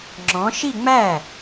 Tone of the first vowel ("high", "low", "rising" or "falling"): rising